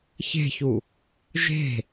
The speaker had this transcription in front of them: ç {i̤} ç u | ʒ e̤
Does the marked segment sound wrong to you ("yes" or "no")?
yes